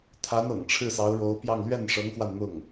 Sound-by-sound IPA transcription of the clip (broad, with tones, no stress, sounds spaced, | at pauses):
t̪ʰ a˧˥ n ɤ̰˨˩ ŋ ʈ͡ʂʰ ɻ̩˥˩ s ɑ˧˥ ʊ̯ ɻ o˧˥ ʊ̯ p j ɑ˥˧ ŋ l ɥ ɛ˥˩ n ʂ ɤ˧˥ ŋ x w a˧ n n̪ ʊ˥˩ ŋ